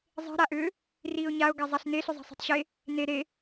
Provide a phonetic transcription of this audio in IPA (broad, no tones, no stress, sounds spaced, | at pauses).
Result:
zˤ e̤ ɾ a ʔ ʏː | r iː ʊ̯ ɲ a ʊ̯ ɡ a zˤ a ɬ n e ɬ ʏ zˤ a̤ sˤ e̤ tˤ ɕ e | n e ɾ e